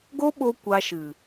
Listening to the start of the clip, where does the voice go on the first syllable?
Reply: high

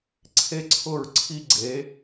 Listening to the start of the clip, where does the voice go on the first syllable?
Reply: high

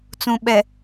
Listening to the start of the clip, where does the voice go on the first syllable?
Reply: low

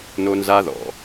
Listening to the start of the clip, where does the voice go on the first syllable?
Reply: high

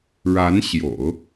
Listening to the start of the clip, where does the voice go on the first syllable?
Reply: rising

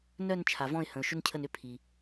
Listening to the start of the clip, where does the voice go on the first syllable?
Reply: falling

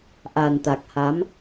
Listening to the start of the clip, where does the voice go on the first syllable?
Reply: low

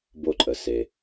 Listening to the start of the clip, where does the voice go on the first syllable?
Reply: falling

